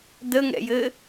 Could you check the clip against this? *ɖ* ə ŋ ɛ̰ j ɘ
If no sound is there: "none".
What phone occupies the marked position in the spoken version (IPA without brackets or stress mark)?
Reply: d